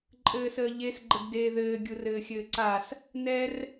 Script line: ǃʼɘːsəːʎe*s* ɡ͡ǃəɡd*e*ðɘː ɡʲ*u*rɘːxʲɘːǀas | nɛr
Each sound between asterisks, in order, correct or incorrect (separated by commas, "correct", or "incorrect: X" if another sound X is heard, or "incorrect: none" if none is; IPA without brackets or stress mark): correct, incorrect: eː, correct